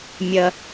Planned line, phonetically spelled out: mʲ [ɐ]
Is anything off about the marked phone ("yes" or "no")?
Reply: no